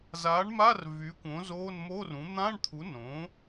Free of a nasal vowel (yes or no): no